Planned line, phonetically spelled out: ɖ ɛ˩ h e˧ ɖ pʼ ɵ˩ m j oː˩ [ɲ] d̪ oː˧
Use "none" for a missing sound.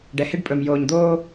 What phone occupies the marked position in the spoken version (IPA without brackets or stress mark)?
ɲ